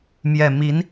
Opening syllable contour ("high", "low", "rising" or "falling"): low